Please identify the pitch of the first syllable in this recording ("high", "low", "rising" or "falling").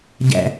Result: low